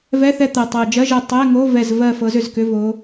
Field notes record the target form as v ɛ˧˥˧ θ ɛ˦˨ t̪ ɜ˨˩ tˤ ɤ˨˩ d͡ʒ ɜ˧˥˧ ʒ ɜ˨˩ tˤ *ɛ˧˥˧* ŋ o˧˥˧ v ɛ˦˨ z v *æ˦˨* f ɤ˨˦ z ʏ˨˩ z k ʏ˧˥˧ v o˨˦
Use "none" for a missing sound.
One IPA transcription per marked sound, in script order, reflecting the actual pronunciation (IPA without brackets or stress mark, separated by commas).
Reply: ɛ˧˥˧, ɜ˦˨